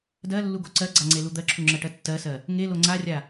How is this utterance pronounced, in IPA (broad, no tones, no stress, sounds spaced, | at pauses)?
d ɜ lː u ɡ o ǀ ɜ ɡ͡ǀ a ŋ͡ǀ e l u d̪ ɜ ǁʰ u ŋ͡ǁ ɜ ʈ ɜ tː ɜ s ɜ | ŋ e l o ŋ͡ǀ a rʲ a